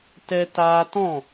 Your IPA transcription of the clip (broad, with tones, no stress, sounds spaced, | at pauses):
t ɛ˦ t aː˧ t ɔ̃˦˨